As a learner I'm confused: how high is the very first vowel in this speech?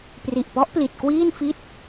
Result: high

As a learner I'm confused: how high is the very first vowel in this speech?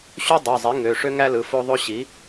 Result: high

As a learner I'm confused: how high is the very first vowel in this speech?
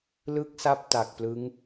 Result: high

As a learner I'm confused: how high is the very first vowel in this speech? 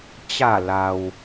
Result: low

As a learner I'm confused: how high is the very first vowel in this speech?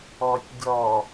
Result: mid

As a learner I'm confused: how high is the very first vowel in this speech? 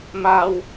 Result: low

